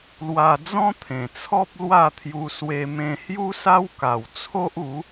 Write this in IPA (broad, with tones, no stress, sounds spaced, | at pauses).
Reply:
l w a˧ d͡z ɔ̃˦ t̪ʰ ẽ˨˩ t͡sʰ ɔ˦ p̚ l w a˥˧ t̪ʰ j u˧ s w e˧ m ẽ˧ h j u˦ s a˦ w k a˨˩ w t͡sʰ o˦ ʔ u˨˦